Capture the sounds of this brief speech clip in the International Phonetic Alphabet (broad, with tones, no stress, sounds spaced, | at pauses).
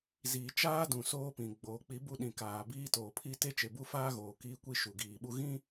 z iː˨ t͡ʃ aː˦ d ũ˨ s oː˦ p ĩ˨ ɡ͡b oː˨ k͡p i˨˦ b u˦ ɗ ĩ˨ k aː˨ b iː˦ t oː˨ pʰ i˦ t e˦ t͡ʃ e˨ b u˦ f aː˦ ɣ oː˨ k iː˦ kʷ i˦ ʃ u˨ ɡ iː˨ ɓ u˦ ɣ ĩ˦